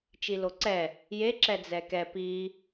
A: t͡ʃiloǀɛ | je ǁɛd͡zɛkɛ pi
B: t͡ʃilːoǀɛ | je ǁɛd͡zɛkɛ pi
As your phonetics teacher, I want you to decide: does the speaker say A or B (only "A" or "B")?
A